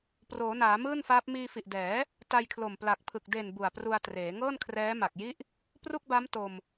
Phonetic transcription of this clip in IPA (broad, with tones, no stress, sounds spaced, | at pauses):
p r oː˩˦ n aː˩˦ m ɯː˥˩ n f aː˦˥ p̚ m iː˧ f i˨˩ ʔ d ɛː˩˦ | t a˧ j kʰ l o˨˩ m p l a˨˩ k̚ pʰ ɯ˨˩ k̚ d e˨˩ n b u˨˩ a̯ p r u˧ a̯ t r eː˩˦ ŋ ɤː˥˩ n kʰ r ɛː˦˥ m a˨˩ k̚ j i˥˩ ʔ | p r u˥˩ k̚ b a˦˥ m t o˧ m